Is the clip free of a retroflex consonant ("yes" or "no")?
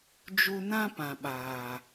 yes